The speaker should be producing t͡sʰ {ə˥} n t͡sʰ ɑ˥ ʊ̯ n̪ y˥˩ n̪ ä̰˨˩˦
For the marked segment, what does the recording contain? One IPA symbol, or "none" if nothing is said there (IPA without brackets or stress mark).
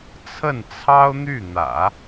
ə˥˩